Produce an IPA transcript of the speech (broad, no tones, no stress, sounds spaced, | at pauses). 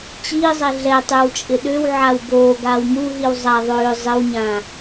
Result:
t͡ɕ iː zˤ ɛ ɮ ɛ tˤ ʉ w t͡ʃʼ ɪ ɗ ø w ʕ a w b oː ɡ aː w m u ɦ i w zˤ a ðˤ øː zˤ ɪ w ɲ ã